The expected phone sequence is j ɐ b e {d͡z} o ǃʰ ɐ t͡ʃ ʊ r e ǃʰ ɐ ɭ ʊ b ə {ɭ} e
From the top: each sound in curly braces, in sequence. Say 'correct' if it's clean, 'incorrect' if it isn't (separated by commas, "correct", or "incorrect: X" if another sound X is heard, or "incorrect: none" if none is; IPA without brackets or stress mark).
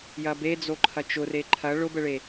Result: correct, correct